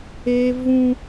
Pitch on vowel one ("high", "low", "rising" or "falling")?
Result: high